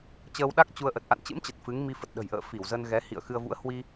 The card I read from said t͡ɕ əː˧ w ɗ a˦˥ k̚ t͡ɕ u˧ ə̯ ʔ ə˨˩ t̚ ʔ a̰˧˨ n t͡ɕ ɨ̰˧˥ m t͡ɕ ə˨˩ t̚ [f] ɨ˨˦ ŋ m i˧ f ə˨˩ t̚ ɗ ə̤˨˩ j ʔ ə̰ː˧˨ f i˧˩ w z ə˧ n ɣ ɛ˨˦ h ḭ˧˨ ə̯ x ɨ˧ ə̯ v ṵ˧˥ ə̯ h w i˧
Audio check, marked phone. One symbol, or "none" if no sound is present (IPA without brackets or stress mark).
f